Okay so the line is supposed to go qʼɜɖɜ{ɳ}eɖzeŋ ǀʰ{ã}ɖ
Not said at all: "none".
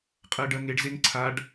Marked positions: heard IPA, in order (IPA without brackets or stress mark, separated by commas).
ŋ, a